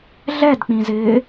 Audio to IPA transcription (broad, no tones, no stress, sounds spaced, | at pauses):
ɮ ɛ d k͡p ĩ z ɪː